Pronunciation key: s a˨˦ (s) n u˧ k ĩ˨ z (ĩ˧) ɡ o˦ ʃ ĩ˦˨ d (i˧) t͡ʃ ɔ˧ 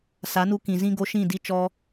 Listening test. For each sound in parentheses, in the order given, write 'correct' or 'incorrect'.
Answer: incorrect: none, incorrect: ĩ˦, correct

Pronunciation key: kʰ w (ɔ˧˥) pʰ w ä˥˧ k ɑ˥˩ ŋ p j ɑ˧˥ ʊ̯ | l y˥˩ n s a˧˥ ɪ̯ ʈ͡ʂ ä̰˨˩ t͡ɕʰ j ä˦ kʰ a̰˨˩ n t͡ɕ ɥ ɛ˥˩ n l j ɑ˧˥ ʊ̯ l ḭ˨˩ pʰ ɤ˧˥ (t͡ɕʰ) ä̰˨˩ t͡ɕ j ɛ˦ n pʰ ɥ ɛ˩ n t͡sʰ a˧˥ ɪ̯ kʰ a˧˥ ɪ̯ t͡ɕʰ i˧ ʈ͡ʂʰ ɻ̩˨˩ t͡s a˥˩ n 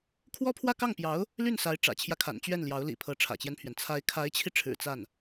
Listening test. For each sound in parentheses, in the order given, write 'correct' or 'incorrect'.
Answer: incorrect: ɔ˥, incorrect: ʈ͡ʂʰ

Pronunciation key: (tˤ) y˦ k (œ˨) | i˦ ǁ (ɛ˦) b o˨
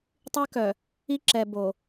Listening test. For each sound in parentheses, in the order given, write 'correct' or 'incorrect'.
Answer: correct, correct, incorrect: ɛ˨

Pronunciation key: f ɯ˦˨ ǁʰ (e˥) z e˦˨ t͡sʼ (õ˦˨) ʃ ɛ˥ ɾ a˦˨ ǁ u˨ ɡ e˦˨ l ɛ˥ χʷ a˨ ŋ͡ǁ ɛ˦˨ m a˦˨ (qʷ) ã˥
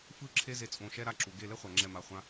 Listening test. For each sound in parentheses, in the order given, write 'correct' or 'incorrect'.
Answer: correct, correct, incorrect: χʷ

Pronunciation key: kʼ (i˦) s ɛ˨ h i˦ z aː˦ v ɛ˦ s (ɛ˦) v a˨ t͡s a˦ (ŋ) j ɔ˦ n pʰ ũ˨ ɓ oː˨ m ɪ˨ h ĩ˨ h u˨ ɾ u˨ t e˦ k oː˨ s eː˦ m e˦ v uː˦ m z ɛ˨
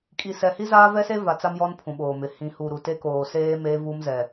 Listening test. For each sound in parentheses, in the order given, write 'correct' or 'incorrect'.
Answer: incorrect: i˨, incorrect: e˦, incorrect: m

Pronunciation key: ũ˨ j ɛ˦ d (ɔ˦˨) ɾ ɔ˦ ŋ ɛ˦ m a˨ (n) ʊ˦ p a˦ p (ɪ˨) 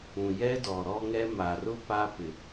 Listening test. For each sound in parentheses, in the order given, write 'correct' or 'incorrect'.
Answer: incorrect: ɔ˨, incorrect: r, correct

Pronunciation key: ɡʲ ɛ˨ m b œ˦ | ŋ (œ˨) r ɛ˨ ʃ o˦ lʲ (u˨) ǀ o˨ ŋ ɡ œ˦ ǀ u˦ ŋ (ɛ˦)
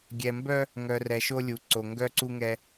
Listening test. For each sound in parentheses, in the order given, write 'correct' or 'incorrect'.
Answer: correct, correct, correct

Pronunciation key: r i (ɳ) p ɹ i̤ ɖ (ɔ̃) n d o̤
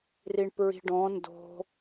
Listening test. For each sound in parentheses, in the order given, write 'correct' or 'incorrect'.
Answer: correct, correct

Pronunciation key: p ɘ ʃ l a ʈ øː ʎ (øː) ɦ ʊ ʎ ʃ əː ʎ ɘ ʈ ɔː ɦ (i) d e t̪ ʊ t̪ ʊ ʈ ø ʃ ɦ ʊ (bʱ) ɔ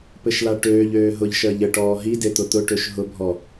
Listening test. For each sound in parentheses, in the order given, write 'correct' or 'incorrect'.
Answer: correct, correct, correct

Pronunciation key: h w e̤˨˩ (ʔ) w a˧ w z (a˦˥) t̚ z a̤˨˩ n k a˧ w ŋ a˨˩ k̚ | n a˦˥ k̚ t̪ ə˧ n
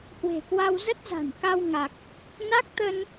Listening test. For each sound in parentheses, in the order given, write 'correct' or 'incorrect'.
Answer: incorrect: k, incorrect: ə˦˥

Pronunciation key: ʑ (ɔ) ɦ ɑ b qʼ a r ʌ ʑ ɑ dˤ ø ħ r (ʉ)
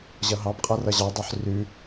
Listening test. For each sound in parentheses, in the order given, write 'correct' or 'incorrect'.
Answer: incorrect: ʌ, correct

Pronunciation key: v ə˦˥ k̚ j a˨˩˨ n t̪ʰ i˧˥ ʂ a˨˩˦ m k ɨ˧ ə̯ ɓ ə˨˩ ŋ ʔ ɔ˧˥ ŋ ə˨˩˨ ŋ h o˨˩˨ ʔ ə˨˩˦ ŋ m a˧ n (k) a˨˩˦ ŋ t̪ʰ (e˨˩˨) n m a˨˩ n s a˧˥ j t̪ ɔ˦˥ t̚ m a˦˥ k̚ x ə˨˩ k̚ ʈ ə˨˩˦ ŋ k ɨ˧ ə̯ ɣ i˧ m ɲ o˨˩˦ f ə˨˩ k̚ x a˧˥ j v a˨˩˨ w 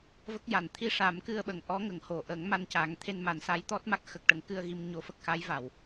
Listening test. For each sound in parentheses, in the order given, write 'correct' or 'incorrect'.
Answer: incorrect: c, incorrect: e˧

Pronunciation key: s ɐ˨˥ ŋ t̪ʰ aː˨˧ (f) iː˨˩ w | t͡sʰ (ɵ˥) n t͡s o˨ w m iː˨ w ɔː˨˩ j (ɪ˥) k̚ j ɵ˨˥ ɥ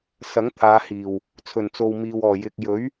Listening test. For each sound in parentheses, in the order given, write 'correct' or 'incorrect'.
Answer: incorrect: h, incorrect: ɵ˨˩, incorrect: ɪ˨

